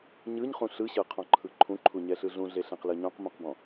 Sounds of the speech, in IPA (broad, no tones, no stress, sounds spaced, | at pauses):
ɲ ɯ ɲ χ ũ ɬ ɯ ɕ ɤ qʰ ɔ̃ ǃʰ ɯ ǃʰ ũ ǃʰ u ɲ ɛ ɬ ɯ ɮ ũ ɮ e ɬ ẽ q l ɤ ɲ ɔ̃ q m ũ q b ɔ̃